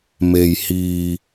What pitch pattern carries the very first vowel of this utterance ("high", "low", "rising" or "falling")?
low